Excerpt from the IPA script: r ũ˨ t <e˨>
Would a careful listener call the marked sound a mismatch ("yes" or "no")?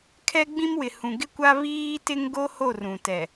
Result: yes